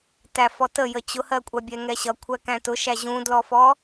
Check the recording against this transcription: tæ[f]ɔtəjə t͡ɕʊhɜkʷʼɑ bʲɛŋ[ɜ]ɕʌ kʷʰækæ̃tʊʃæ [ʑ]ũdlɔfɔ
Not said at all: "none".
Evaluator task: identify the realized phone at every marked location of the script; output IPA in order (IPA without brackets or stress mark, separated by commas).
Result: f, ɛ, ʑ